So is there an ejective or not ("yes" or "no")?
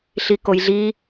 no